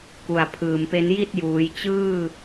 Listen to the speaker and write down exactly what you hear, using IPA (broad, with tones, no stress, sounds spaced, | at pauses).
k u˨˩ a̯ pʰ ɯː˨˩ m p e˦˥ n j i˥˩ t̚ j uː˩˦ j t͡ɕ ɯː˥˩